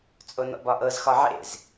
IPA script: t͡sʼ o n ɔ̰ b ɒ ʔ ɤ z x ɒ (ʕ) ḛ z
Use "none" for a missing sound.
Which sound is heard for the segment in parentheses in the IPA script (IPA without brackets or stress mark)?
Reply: ʕ